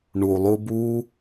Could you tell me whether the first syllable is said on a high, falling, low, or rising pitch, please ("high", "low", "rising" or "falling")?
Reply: low